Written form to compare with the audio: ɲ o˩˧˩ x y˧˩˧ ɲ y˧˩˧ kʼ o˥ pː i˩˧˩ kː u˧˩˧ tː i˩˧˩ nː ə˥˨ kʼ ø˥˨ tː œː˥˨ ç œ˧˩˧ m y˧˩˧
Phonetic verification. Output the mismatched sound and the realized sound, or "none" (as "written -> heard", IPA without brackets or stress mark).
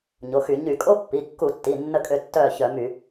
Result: none